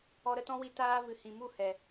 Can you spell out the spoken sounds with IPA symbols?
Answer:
ɔ˧ ɾ ə˧ t ɔ̃˦ w i˧ t aː˧ v ɨ˨ h ĩ˨ m u˦˨ h ɛ˨

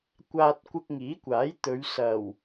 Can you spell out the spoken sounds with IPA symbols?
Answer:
kʷ aː˧ t̚ kʷ ɪ˧ k̚ ŋ iː˨˥ kʷ aː˨˥ j t̪ ɵ˨˧ ɥ s ɐ˨˩ w

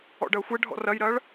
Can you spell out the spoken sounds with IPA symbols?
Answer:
ɔ̰ ɖ ɐː xʷ ɛ ɖʱ ɔ̰ r ɐ j ɾ ɐː ɭ

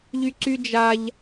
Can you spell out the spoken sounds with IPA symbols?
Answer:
ʎ y ǀ y d͡ʒ a ʎ

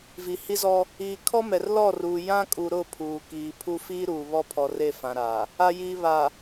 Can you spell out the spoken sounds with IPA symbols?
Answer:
v i˨ h i˦ z ɔ˦ | iː˨ kʰ ɔ˦ m ɛ˨ r l ɔ˦˨ r uː˨ j ã˦ kʼ u˨ ɾ ʊ˦˨ pʰ uː˨ k iː˨ pʰ u˦ f iː˦ ɾ uː˨ β ɔ˦ pʰ ɔ˨ r e˦˨ f ã˨ ɾ aː˨ | a˨ j iː˨ β a˨

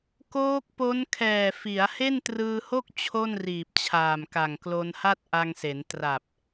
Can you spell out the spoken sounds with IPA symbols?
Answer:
k oː˦˥ k̚ p o˦˥ n kʰ ɛː˨˩ f i˩˦ a̯ h e˥˩ n t r ɯː˧ h o˥˩ k̚ t͡ɕʰ o˥˩ n r iː˨˩ p̚ t͡ɕʰ aː˨˩ m k a˨˩ ŋ k l o˧ n h a˥˩ t̚ ʔ a˧ ŋ s e˩˦ n t r a˨˩ p̚

